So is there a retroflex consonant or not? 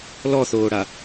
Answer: yes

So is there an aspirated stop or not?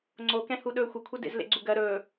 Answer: yes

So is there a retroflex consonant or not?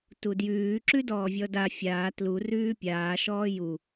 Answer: no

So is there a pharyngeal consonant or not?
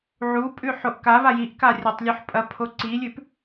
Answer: yes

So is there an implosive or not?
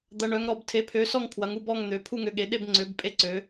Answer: yes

